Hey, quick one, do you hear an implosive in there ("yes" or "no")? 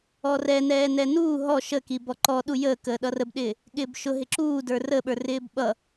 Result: yes